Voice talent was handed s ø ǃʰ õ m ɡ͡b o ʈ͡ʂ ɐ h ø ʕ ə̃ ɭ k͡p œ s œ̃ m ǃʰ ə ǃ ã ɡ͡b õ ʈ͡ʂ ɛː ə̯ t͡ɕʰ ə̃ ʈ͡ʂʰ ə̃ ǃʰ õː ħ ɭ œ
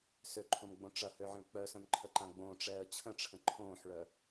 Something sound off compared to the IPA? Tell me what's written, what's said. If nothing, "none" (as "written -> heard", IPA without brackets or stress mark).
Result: o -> õ